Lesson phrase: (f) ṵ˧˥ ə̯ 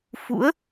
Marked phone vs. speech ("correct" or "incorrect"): correct